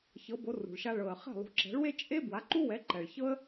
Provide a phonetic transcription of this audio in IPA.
ç ɤ˩˥ b o˩˥ r ṳ˩ ɭ ʃ a˧ ɭ ɤ˩ ə̯ χ ɛ̤˥˩ lˠ ṳ˩˥ ǁ ɛ̤˩˥ ɭ w e˥ t͡ʃʼ e˥ b w a˩˥ ǃ u˥ w ɛ˩˥ ǃ ɛ˩ ɭ ç ɤ˥ ə̯

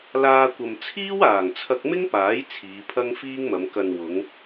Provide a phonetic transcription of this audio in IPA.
l aː˧ kʷ ɐ˨ m t͡sʰ iː˥ w aː˨˩ ŋ t͡sʰ ɐ˧ k̚ m ɪ˥ ŋ p aː˨˥ j t͡sʰ iː˨˧ pʰ ɐ˥ ŋ f iː˥ ŋ m ɐ˨˧ m k ɐ˨ n w ʊ˨˧ ŋ

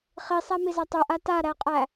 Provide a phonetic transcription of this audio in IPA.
χ i sˤ æ m i z a tˤ o ʔ a t a ɾ æ qʼ æ

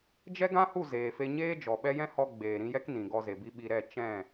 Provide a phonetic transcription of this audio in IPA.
d͡ʒ ɛ˦ ɡ ã˦ h u˦˨ z eː˨ f e˧ ɲ eː˦ d͡ʒ ɔ˨ ɓ ɛ˦ j ɛ̃˦ h ɔ˧ ɡ͡b eː˨ ɾ ĩ˧ j ɛ˦ k n ĩ˨ ɡ ɔ˧ z e˨ b i˦ ɓ i˧ ɾ ɛ˦˨ t͡ʃ ɛ̃˦˨

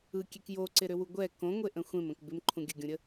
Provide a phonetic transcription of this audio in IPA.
ɯ kʲ e k j o ǀ ɪ ɾ ʏ w u ɡʷ ɛ k õ ŋʷ e ʔ ə̃ xʷ ẽ m ə̃ k b ɪ m ǃʰ ũ ɡʲ ə ɡʲ ũ ɾʲ ə

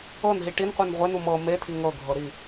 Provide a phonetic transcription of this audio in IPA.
ɤ n ɦ i ʈ i n qʷ i n ʁʷ e n u m ɤ m e tʰ i ŋ ɤ ɡʱ ɤ ɾ i

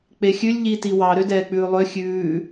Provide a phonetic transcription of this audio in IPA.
k͡p e xʲ ʉ lʲ ʎ i t i w ɑ ɾ ø d ɛː k͡p ʉː lˠ ø xʲ ʉː

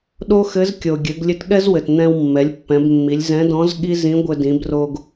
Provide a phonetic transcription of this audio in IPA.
ɗ o˥ x ɘ˧˥ z kʲ o˩ ɡʲ ɘ˩˧ ɡ lʲ ɘ˧˥ t ɠ ɛ˥ z w ɘ˩ t n̪ ɛ̃˧ w mː ɛ˩˧ lʲ pː ɛ̃˩˧ b mː i˩˧ lʲ z ɛ̃˧˥ d ɔ̃˧˥ z ɠ i˥ z ĩ˧˥ ɡʷ ɘ˧ d ĩ˩˧ b r o˧ ɡ

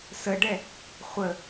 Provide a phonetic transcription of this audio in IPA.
s ə ɖ ɛ | χʷ ə

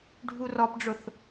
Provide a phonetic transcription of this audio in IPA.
ɖʱ u r ɔ p ɖ͡ʐ ʊ θ

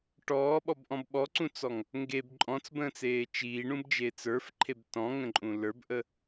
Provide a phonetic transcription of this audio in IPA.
ʈ ɔː ɓ ɔ b ʔ ɔ̃ b ɓ ɔ ǀ ũ t͡s ɔ ŋ | ŋ ɡ e b ǃʼ ɔ̃ t͡s b ə̃ː t͡s eː t͡ʃ iː ɳ ũ b d͡ʒ eː t͡s ə˞ f ǃʰ e b t ɔ̃ ŋ ə̃ ǃʼ ũ l ə˞ b ʔ ə

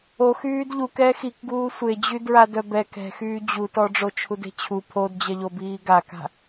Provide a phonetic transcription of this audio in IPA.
o x yː d ʎ u k ɛː x i k ɡ uː sʷ e d͡ʑ y d ɹ a d œ b ɛ k ɛ̤ x yː d͡ʑ u t ɔ ɖ͡ʐ o t͡ʃʰ u d e̤ t͡ɕʰ u pʰ o d d͡ʑ ɛ ʎ o b iː ɡ a k a̤

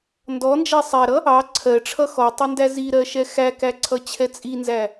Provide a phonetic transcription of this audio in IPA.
n d ɔ n d͡ʒ æ sˤ æ ɾ ʌ | ɑ ǀʰ ɜ ʈ͡ʂʰ ʌ x ɔ tˤ ə n d æ z i ɾ ɜ ʃ ɛ x æ k æ ǀʰ ʌ t͡ɕʰ ɛ t͡sʼ i n z æ

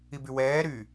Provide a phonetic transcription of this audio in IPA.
i b y w ɛː ɾ yː

